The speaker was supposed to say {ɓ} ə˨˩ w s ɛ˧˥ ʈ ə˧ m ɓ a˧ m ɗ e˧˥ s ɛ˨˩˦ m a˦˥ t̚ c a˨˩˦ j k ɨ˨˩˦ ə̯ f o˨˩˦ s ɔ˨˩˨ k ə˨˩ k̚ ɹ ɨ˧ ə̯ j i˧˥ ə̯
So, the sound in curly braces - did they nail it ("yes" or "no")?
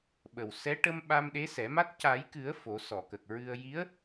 yes